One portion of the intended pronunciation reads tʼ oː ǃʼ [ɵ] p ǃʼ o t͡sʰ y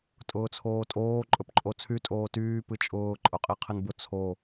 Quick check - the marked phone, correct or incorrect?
correct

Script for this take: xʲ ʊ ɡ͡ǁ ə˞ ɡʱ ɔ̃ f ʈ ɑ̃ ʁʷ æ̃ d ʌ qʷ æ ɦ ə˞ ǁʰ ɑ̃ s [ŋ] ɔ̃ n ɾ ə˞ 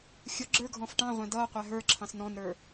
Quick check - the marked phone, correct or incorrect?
incorrect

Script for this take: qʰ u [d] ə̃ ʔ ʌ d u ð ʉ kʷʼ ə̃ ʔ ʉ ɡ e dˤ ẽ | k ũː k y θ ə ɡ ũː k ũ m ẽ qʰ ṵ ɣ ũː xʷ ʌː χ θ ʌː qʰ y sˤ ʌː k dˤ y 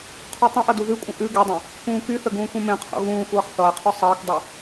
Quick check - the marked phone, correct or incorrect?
incorrect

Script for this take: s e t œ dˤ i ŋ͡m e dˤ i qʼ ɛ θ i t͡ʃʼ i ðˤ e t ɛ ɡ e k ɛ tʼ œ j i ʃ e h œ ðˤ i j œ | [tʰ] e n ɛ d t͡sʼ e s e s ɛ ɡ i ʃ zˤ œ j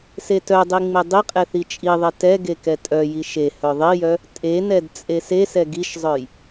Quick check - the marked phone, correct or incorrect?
incorrect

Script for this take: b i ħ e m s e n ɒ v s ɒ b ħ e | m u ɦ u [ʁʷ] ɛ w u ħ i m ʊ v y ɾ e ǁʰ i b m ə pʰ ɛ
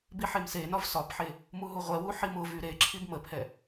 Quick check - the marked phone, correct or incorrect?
correct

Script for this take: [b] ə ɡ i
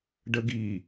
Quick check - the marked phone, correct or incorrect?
incorrect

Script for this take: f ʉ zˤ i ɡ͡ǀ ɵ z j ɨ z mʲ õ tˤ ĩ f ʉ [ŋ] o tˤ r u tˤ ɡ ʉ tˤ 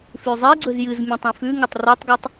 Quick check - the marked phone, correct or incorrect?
correct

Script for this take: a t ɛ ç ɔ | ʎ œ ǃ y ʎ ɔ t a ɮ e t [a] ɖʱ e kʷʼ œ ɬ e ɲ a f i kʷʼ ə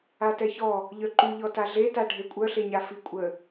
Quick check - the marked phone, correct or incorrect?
correct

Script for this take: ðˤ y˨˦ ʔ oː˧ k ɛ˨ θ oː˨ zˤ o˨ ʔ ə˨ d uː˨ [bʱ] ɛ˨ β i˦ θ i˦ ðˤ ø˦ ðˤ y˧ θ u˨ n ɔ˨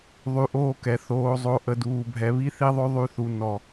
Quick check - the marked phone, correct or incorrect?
correct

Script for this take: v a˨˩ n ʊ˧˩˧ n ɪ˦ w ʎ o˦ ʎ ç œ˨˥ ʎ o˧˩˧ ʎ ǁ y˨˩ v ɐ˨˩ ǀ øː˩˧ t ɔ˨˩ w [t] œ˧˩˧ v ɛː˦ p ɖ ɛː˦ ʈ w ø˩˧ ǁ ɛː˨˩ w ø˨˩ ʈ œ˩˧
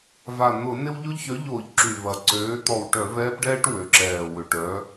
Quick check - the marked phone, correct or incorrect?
incorrect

